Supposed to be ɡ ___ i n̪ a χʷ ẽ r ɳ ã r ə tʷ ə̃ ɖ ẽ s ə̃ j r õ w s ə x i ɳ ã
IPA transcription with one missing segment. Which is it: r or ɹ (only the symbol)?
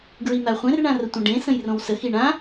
ɹ